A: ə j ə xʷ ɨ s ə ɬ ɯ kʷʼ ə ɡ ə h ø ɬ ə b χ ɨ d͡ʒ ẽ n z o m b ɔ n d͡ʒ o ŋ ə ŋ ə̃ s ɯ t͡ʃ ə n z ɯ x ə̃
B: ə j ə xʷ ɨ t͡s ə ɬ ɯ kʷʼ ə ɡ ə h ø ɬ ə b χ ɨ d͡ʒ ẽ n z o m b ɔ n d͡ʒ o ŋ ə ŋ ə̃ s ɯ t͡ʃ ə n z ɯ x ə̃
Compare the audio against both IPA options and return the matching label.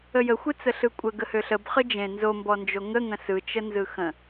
B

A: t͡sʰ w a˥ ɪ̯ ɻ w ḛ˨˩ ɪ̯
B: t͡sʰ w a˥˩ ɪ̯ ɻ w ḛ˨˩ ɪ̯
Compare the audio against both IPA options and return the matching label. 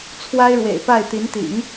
A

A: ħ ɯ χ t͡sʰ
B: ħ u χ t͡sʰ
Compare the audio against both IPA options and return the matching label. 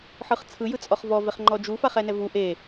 A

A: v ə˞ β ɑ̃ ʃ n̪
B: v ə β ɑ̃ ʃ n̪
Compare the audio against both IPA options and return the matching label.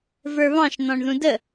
A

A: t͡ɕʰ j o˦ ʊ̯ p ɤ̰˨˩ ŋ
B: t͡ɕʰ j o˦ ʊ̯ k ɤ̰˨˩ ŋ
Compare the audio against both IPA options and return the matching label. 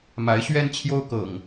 B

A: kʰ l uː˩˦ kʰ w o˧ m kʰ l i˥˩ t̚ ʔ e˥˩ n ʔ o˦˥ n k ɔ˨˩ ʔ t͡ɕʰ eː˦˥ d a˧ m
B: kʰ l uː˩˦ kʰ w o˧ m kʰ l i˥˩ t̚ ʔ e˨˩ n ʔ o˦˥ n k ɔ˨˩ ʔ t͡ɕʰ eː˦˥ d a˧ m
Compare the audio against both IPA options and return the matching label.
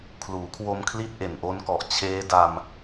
B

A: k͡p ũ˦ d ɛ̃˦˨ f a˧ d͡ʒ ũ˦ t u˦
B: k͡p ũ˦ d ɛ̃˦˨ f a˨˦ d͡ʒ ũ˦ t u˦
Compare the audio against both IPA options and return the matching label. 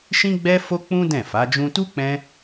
B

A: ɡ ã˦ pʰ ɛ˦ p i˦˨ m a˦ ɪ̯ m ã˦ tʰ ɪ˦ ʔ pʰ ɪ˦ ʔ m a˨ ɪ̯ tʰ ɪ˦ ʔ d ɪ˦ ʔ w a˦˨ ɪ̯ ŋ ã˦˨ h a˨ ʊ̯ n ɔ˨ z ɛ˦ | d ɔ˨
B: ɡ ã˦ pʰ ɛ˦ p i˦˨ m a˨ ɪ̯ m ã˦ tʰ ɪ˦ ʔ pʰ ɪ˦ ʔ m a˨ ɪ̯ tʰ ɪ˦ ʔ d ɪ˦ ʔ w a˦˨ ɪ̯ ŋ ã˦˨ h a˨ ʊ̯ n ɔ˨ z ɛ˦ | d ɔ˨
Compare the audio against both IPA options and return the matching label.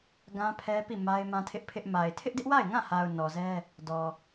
A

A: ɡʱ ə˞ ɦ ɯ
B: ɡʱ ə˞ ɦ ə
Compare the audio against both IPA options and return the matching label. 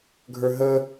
B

